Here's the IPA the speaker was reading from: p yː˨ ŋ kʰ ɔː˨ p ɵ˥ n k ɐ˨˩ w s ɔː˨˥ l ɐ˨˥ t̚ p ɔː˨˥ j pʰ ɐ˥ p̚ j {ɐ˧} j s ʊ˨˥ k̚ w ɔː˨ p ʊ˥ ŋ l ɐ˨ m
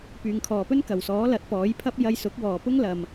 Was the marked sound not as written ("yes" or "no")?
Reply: no